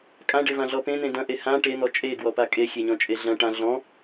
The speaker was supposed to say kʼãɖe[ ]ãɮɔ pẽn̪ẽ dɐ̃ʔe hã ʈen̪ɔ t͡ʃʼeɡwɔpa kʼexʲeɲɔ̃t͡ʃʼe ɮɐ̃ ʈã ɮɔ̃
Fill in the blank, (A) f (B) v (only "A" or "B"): B